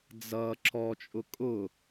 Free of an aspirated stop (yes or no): yes